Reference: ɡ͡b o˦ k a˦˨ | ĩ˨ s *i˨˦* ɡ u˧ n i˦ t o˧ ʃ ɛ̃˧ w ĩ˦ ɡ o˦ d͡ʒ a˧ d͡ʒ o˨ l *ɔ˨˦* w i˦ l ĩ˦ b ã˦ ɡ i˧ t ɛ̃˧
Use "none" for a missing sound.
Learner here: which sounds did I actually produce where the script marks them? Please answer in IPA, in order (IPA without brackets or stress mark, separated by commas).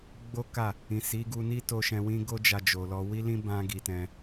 i˨˦, ɔ˧